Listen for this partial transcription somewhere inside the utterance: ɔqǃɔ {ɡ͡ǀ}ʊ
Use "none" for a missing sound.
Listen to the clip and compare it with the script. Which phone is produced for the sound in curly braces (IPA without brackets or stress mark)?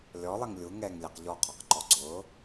ɡ͡ǀ